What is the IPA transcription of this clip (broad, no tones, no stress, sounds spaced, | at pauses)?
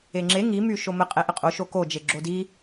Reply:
e ŋ͡ǁ e ŋ i m y ʃ o m ə qʼ ɛ ʔ ə qʼ o ʃ o k o d͡ʒ e ɡ͡ǁ o d i